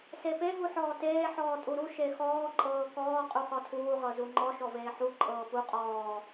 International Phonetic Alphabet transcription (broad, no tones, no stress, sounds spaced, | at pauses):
s e p e ɦ u ħ ɔː t eː ħ ɔː tʼ u ɾ u ʃ e x ɔː ǃʼ ɤː k ɔː qʼ u χ ɔ tʰ uː ʁ ɤ z u ŋ͡ǃ ɔ ʃ ɔ v eː ħ u ǃʼ ɤː p u qʼ ɔː